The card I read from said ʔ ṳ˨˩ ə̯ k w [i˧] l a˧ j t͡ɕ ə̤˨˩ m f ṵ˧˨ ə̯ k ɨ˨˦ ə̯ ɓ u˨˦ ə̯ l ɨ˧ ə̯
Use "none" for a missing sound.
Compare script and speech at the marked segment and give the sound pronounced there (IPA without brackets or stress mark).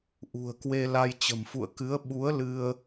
e˧